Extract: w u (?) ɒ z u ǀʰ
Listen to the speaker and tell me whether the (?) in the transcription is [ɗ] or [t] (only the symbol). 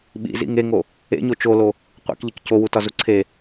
t